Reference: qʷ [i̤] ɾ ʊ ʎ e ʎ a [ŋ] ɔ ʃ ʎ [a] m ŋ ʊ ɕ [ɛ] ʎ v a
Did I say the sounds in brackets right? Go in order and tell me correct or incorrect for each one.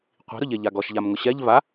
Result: correct, incorrect, correct, correct

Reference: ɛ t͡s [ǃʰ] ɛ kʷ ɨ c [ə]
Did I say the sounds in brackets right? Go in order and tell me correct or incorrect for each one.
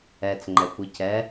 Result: incorrect, incorrect

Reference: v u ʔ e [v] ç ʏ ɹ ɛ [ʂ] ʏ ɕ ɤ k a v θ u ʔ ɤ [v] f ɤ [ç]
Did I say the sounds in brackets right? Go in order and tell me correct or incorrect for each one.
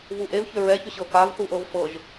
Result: correct, incorrect, correct, incorrect

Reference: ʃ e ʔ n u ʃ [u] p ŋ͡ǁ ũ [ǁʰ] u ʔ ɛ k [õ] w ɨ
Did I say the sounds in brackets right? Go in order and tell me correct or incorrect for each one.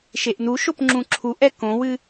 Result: incorrect, correct, correct

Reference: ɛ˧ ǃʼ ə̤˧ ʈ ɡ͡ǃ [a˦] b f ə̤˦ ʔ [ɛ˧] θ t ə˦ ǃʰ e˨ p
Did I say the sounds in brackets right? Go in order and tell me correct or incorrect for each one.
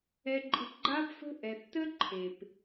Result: correct, incorrect

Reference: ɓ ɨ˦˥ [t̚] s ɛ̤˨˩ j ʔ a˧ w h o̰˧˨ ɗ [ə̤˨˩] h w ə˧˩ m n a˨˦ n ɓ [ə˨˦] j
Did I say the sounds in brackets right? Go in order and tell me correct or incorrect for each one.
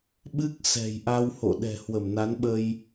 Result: incorrect, incorrect, incorrect

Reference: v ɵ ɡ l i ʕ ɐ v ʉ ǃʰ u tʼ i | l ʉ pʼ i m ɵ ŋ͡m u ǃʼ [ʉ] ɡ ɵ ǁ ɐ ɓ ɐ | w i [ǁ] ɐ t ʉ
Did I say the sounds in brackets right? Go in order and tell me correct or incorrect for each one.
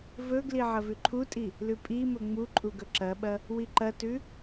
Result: incorrect, incorrect

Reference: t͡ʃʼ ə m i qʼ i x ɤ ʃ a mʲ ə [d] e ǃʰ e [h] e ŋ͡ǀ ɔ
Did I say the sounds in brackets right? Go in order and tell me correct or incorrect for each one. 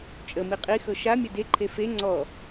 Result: correct, incorrect

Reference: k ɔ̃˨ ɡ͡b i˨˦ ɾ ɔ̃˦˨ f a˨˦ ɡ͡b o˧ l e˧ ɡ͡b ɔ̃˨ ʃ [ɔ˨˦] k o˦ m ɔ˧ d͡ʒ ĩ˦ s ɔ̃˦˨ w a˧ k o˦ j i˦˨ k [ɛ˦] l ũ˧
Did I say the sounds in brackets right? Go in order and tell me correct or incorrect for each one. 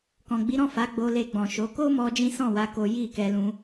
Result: incorrect, incorrect

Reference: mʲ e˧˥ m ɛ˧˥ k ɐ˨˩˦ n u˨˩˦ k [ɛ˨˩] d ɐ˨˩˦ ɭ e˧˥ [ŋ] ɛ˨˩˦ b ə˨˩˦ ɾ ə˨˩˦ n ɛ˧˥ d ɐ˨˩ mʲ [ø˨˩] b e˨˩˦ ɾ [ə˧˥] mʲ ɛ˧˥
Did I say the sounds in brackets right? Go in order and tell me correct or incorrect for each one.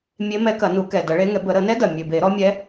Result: correct, correct, correct, incorrect

